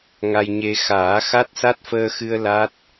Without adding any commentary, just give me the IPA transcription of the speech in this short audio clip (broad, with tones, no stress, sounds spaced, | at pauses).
ŋ a˧ j ɲ e˧ x aː˨˩˦ x a˦˥ t̚ s a˦˥ t̚ f əː˧ x ɨ˧ ə̯ l a˦˥ t̚